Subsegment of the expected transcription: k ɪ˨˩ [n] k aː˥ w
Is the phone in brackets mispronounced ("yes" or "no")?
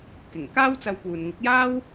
yes